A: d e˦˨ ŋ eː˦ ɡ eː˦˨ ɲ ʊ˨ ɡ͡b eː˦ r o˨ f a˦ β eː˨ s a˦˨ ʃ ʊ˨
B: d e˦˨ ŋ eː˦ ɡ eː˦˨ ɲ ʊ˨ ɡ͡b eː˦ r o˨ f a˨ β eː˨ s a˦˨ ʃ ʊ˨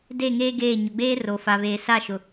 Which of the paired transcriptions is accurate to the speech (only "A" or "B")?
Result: B